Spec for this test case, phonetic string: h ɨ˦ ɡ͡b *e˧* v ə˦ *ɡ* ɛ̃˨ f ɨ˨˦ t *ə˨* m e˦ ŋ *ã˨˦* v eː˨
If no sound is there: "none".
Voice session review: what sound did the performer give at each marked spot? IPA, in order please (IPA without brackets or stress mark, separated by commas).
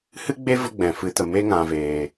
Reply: e˦, ɡ͡b, ə˨, ã˨